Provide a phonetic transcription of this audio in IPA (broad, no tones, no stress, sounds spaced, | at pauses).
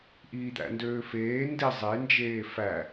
ʔ iː d̪ æ̰ n d øː f eː n d i zˤ e n d͡ʒ eː f æ